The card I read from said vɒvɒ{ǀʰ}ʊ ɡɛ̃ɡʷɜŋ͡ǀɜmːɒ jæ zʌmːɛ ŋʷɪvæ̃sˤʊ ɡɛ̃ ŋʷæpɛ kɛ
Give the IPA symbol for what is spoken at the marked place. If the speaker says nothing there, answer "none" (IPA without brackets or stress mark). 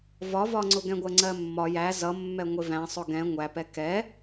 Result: ŋ͡ǀ